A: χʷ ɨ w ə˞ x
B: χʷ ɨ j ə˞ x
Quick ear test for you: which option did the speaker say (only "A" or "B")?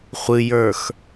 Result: B